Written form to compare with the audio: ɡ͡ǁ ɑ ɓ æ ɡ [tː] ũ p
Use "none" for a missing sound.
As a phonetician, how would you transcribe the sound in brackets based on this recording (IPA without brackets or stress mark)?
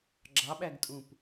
tʼ